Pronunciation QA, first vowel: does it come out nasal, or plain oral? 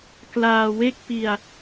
oral